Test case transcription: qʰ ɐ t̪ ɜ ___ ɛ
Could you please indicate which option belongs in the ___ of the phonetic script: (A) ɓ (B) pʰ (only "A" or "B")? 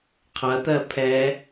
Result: B